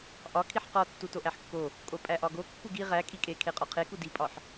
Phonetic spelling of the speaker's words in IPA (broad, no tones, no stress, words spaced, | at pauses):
ʔɒ kʰiħqɒ tːutoʔæħkːo | kʼopʼæʔɒɡo kːuɡi ʁæ kʼikʼe kʰeqʼɒqʰeku dipʼɒħ